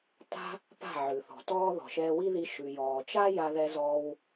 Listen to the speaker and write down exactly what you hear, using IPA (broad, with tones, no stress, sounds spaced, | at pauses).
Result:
t a̤˦ | p a̤˦˨ ʕ ʉ˨ θ ɔ̤˨ t ɔː˦ ð ɔ̤˨ ʃ ɛː˧ w i˦ ð i˧ ʃ ʉ˨ j ɔː˨ t͡ʃ a˦ j a˧ ð ɛ˧ z ɔː˧ w